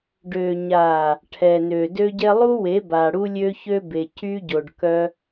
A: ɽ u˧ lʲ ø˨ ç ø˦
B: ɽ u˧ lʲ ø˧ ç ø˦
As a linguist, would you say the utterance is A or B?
B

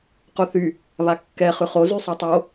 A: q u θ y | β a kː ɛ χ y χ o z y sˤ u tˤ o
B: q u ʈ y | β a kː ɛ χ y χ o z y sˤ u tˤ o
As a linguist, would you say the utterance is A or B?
A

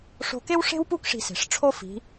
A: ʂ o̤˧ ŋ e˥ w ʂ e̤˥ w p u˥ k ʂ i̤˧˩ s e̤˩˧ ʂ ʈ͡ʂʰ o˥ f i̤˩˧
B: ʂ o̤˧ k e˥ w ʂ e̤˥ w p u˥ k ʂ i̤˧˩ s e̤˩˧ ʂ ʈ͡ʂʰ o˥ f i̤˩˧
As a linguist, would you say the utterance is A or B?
B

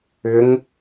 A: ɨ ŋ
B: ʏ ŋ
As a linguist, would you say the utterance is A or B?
B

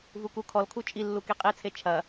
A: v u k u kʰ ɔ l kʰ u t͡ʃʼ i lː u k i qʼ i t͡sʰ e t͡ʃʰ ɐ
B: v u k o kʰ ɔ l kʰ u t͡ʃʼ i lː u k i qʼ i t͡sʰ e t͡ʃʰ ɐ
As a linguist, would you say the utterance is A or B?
A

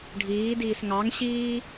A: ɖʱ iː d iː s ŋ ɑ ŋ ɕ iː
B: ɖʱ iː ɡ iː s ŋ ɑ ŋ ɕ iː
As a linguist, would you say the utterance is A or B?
A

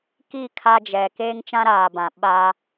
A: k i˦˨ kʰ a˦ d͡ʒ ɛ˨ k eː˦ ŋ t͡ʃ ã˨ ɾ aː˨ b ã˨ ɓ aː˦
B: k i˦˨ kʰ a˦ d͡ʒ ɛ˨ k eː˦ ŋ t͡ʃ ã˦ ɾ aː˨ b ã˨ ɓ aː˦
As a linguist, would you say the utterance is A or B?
B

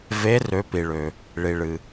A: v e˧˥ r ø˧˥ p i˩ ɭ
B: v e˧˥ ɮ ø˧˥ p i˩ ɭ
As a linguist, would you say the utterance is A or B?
A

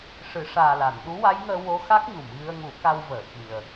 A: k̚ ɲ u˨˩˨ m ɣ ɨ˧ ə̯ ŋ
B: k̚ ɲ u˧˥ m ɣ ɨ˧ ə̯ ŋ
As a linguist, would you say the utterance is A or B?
A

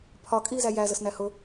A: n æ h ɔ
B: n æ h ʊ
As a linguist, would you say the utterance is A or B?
B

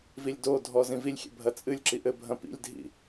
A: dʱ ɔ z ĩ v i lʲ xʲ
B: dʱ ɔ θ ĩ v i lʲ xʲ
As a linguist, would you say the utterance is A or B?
A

